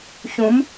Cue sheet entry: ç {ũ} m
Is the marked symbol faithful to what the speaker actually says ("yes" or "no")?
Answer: yes